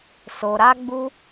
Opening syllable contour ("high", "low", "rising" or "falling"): low